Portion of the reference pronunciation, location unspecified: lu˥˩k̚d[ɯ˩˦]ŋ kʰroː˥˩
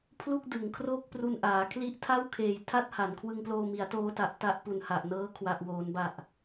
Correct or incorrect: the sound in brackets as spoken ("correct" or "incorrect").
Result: correct